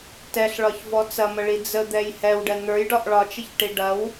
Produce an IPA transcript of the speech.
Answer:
tɛɬɭɒçvɔ t͡sɐməɭi d͡zəd̪ɛj hɛwɖɛ n̪ə˞jɖɒʔ ɭɒt͡ʃəçʈi ɖɐw

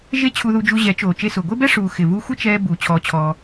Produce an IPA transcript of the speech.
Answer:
ʒe˦t͡ɕʰu˧ðu˧d͡ʒu˧ ʑɛ˨˦t͡ʃoː˨ t͡ʃe˧sʊː˨ ɡʷe˦bɛ˦ ʂuː˨ xɪ˨vu˧xʷɪ˦t͡ʃɛː˧ bu˨˦ t͡ɕʰɔː˧t͡ɕʰɔː˧

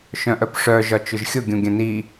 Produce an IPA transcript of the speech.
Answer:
ʃœ̃ʔœpʂœ ʒɒt͡ʃʊʒxʲʊ ɡʲũɡʲœ̃ni

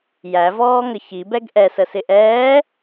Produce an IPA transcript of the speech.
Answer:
jævɔːŋə çibɛɡ ʔɛsəsɪ ʔɛː

